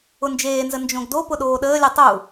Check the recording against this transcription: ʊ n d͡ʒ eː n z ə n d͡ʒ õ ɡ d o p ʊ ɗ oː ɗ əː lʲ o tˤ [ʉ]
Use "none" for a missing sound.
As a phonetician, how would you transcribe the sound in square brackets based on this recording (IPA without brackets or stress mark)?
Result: u